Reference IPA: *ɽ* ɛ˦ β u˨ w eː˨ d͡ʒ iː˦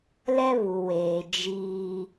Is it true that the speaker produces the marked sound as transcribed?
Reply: no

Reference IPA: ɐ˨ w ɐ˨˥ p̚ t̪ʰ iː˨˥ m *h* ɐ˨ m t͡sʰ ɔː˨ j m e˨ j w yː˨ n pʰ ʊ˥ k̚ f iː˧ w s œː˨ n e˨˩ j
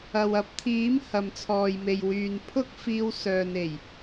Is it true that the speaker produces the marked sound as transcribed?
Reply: yes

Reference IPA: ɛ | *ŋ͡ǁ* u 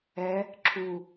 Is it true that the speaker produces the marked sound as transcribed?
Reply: no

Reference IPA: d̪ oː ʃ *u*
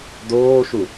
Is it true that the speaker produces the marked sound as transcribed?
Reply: yes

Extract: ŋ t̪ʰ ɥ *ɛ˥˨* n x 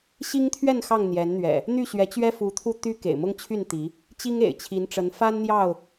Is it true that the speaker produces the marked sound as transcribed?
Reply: yes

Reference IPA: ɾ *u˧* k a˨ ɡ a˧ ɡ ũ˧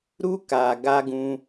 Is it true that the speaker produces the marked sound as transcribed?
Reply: yes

